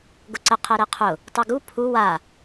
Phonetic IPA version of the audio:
ɡ ʊ ǀ ə qʰ ɛ ɾ ɛ qʰ ʊ | tˤ u ɡ u pʰ u w a

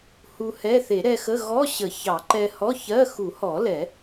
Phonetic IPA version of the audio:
h u˧ h ɛ˧˥˧ θ e˨˩˦ ɾ ɛ˧ x ə˧˥˧ ɣ ɔ˧˥˧ ɕ ə˨˩˦ ç ɑ˨˩˦ ǃ ɛ˧ h ɔ˧˥˧ ç ɜ˧˥˧ x u˨˩˦ h ɔ˨˩˦ l ɛ˨˩˦

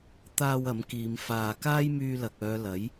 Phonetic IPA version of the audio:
t̪ aː˧ w ɐ˨˥ m k iː˨˧ m f aː˧ k aː˥ j m yː˧ l ɐ˨ k̚ œː˨˧ l ɐ˨˥ j

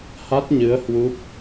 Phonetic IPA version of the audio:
h a˦˥ t̚ ɲ ɨ˨˦ ə̯ h w u˦˥ p̚

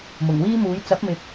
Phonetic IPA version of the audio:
m ʊ˨˩ ŋ w iː˥ m uː˨˥ j t͡s ɐ˨˥ p̚ m ɪ˨˥ k̚

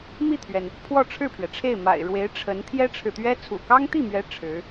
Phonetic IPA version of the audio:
m i˥˩ t̪ʰ ɥ ɛ˩ n | pʰ w ɔ˥˧ ʈ͡ʂʰ ɻ̩˥˩ pʰ ɥ ɛ˩ ʈ͡ʂʰ e˥˩ ɪ̯ m a̰˨˩ ɪ̯ ɻ w e˧˥ ɪ̯ ʈ͡ʂʰ ə˧˥ n t̪ʰ j ɛ˥ ʈ͡ʂʰ ɻ̩˨ t̪ ɥ ɛ˥ t͡sʰ ṵ˨˩ k ɑ˥ ŋ t̪ i˥˩ m ɥ ɛ˧˥ ʈ͡ʂʰ ɻ̩˧˥

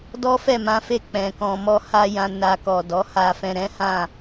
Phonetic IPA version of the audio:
d ɔ˦ f ɛ˦˨ m ã˨˦ f e˦˨ k͡p ɛ̃˨ k ɔ̃˧ m ɔ˦ h a˦ j ã˧ n a˧ k ɔ˨ d ɔ˨˦ h a˧ f ɛ̃˧ ɾ ɛ̃˦ h ã˦˨

